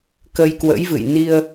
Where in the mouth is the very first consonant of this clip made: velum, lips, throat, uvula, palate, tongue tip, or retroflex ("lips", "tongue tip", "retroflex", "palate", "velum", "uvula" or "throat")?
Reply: velum